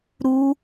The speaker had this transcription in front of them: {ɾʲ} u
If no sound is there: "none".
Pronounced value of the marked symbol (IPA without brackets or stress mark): ɾ